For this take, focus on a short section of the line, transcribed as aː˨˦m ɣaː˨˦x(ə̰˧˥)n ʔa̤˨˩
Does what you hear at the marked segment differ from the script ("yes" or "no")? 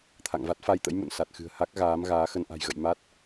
yes